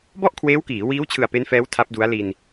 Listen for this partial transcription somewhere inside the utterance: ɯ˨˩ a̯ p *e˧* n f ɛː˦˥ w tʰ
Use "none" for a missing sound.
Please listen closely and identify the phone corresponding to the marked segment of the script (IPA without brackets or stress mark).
e˦˥